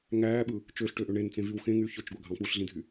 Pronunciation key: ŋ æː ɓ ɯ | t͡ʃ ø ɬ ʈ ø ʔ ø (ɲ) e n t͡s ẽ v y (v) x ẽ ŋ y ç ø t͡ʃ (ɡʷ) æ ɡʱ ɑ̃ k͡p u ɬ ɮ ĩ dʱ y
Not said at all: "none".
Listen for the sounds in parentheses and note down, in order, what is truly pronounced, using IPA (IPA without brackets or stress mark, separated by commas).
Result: ɳ, w, ɡʷ